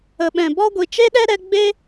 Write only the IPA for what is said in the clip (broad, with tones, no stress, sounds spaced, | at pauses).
ə˨ ɓ ɛ̃˨ b ɔ˦ ɡʷ i˨ t͡ʃ e˦ ɗ ɛ˦ ɾ ɛ˧ ɡ͡b e˦